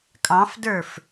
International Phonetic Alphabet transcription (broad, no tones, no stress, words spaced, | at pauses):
kʼɑ̃fdə˞f